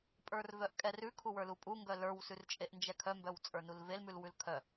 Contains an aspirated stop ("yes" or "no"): yes